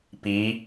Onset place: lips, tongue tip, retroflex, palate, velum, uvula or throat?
lips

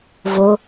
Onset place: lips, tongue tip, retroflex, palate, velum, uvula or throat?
lips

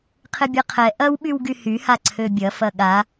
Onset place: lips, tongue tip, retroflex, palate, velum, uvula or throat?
uvula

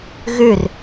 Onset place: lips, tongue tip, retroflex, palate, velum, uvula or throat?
velum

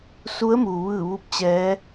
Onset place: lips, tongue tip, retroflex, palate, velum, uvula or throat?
tongue tip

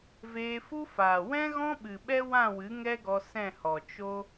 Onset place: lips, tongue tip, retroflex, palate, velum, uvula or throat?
lips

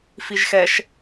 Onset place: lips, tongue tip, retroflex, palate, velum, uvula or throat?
lips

